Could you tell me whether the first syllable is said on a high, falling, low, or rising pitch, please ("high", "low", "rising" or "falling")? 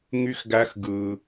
high